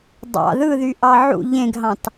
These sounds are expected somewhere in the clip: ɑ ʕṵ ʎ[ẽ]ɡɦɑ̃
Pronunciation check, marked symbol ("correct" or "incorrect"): correct